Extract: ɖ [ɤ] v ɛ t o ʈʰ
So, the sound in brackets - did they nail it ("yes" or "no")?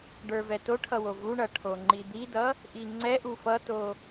no